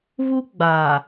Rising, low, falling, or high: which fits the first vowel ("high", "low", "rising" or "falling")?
high